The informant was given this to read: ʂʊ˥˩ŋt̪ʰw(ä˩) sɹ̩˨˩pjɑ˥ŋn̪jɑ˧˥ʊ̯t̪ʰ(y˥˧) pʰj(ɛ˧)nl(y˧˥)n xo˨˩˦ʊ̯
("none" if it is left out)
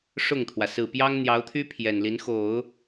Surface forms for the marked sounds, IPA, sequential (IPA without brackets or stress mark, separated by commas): ä˩, y˥, ɛ˨˩, i˧˥